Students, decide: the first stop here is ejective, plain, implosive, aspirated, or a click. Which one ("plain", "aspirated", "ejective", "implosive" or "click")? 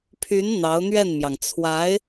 aspirated